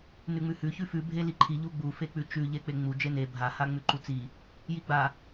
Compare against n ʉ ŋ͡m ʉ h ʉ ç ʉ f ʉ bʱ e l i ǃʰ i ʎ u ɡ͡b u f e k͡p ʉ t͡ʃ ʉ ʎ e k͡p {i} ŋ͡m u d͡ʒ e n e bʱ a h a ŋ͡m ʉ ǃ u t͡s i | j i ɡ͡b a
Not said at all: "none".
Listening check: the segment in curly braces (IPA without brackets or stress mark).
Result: e